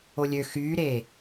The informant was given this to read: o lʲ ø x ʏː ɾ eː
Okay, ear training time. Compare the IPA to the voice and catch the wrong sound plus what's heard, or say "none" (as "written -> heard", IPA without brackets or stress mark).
ʏː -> yː